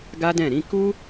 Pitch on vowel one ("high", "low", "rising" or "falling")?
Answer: high